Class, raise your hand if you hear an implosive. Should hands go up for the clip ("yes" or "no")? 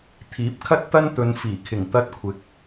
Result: no